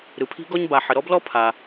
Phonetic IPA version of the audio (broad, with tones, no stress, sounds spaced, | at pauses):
ɾ ɯ˩ pʰ i̤˥ ɡ ɔ˥ ɲ b a˩ ħ ə˩ ɾ ɔ˥ b l ɔ˥ pʰ a˩